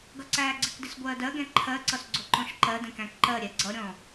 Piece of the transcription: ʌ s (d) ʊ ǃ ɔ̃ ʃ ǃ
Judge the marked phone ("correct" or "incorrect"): incorrect